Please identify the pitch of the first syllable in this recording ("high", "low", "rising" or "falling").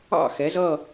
falling